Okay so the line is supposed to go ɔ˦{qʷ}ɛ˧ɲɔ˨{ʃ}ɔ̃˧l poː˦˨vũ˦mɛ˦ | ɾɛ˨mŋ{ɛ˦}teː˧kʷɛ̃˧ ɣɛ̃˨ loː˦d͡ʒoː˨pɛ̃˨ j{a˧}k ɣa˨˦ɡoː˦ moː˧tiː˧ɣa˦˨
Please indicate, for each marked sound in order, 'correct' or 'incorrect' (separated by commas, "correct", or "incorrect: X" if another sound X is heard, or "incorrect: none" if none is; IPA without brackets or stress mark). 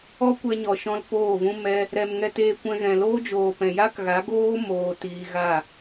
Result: incorrect: kʷ, correct, incorrect: ɛ˧, incorrect: a˦